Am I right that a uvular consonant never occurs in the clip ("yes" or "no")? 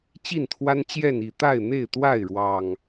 yes